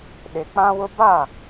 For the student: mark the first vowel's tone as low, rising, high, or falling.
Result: low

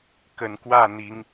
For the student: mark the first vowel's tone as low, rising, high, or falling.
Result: low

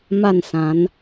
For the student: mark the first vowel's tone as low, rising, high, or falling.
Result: falling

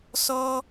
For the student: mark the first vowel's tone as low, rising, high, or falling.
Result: high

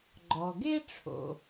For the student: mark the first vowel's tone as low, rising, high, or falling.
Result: low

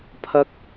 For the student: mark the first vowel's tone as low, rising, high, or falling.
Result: high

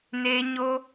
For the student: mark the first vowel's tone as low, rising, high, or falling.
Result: high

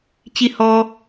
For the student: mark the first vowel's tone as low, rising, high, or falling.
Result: high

